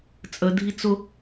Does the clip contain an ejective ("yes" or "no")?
yes